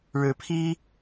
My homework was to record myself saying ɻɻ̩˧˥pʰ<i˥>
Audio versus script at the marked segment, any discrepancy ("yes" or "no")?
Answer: no